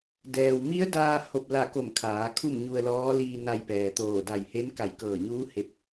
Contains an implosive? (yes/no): no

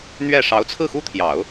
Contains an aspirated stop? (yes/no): yes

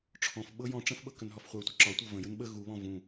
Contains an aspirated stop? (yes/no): yes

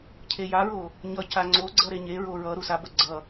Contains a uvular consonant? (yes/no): no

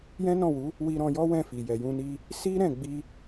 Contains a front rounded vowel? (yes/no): no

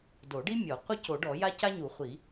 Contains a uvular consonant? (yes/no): yes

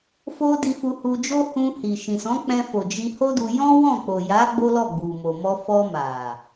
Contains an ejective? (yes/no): no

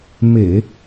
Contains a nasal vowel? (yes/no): no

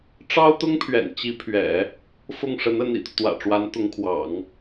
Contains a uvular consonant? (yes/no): no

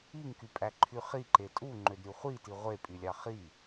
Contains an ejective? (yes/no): yes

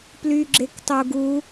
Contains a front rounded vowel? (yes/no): yes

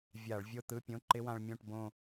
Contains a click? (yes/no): yes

